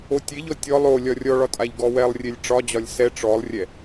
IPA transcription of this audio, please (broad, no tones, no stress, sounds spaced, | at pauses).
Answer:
o tʲ e ʎ ɔ tʲ ɔ lˠ o lʲ ɒ rʲ ɔ ɭ ɒ tʼ a ʎ ɡ ɔ w ɛ lˠ rʲ e lʲ ʈ͡ʂ ɒ d͡ʑ ɒ lʲ s ɛ ʈ͡ʂ ɔ lˠ rʲ ɛ